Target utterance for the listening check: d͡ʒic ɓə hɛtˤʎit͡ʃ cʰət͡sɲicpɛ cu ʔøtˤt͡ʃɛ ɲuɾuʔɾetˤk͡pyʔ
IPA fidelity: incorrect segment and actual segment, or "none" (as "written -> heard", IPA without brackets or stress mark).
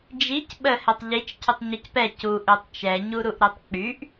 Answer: t͡s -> tˤ